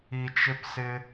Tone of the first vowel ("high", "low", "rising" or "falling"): low